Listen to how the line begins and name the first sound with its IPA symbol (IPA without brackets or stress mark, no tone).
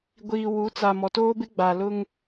ɡʷ